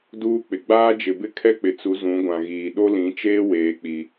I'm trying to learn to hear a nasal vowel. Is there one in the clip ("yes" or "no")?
yes